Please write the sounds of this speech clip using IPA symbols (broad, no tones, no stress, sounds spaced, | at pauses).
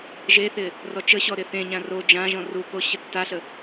ʒ e θ ɪ | r ɔ t͡ʃ ə ɕ ɔ ɾ ɪ θ ẽ ɲ ã r o d͡ʒ ã ʒ ɔ̃ r u k o ɕ ə tː a ɬ ə